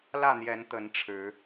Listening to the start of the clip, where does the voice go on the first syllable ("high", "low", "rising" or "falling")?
falling